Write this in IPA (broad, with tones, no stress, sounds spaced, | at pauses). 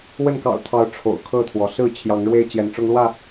w ə˥˨ n k ɑ̰˨˩ ʊ̯ t̪ʰ ɑ˨˦ ʊ̯ ʈ͡ʂʰ o̰˨˩ ʊ̯ kʰ ɤ˥˨ t̪ʰ w ɔ˩ s ɹ̩˥˨ t͡ɕʰ j ɑ˨˦ ŋ ɻ w e˦ ɪ̯ t͡ɕ j ɛ˨˦ n ʈ͡ʂ ʊ˦ ŋ l w ä˥˨